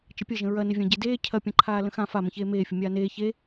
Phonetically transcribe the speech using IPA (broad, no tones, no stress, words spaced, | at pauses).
t͡ʃəpʲɐʒə̃ ɹɐnɪvʲã ɟedeː cʰɐpʲɐ̃ǃʰaː lə̃xã famə̃çeː meːfʲʊ mʲaːneː çe